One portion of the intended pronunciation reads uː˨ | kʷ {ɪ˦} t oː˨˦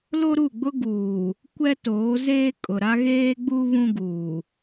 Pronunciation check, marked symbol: incorrect: ɛ˦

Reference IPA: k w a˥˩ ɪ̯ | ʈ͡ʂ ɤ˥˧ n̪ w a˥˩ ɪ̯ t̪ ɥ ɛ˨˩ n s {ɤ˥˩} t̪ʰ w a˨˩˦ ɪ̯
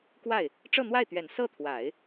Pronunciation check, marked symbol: correct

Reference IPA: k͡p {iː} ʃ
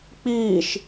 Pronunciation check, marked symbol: correct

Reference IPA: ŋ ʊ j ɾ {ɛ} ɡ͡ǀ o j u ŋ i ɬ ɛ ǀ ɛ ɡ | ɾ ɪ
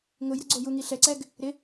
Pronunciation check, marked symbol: correct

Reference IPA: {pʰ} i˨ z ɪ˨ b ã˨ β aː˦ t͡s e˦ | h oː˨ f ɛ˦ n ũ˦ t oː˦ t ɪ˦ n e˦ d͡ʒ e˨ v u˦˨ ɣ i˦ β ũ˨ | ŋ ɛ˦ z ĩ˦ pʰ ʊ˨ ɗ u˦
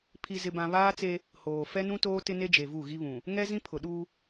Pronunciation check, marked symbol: correct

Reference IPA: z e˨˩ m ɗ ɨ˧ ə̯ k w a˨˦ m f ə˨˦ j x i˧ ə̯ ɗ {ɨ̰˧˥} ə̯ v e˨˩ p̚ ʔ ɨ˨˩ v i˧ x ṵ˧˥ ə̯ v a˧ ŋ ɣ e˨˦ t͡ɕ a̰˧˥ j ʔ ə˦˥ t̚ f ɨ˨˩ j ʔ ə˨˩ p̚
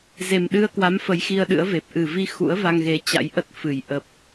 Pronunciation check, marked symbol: correct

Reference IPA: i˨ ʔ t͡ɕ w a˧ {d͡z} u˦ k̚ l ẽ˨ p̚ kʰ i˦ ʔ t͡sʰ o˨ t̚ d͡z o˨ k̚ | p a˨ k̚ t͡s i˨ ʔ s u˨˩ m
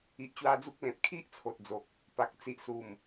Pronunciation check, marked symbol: correct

